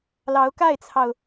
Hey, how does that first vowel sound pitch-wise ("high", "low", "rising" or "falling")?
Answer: rising